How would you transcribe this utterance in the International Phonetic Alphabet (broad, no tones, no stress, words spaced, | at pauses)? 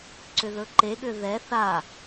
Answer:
ǀʏðɵǃeɠʏ ðɛ θa